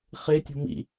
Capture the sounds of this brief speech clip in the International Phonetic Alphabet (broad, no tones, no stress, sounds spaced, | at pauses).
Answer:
χ e tʲ o̤ m ḭ